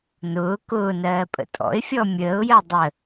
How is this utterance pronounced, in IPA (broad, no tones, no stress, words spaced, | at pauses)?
nʊː kʊːnɜː pʼə̰tʼɔ̰ɪ̯fʲɔ mʲəːʊ̯jɜ dˤə